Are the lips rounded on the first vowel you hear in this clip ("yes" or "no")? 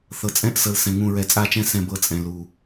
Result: no